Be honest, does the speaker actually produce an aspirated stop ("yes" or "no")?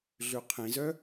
yes